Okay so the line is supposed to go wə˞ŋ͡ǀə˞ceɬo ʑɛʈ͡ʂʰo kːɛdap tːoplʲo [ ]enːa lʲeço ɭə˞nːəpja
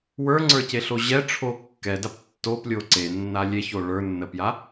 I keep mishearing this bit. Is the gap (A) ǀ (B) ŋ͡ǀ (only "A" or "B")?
A